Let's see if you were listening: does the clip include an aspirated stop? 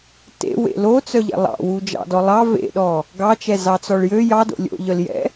no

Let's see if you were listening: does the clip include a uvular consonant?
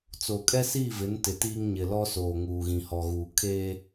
no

